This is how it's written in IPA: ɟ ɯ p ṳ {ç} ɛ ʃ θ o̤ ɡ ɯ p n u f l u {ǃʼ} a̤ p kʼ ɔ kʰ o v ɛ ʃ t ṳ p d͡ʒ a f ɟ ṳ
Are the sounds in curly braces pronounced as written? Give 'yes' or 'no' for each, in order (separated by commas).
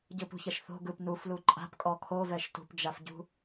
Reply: yes, yes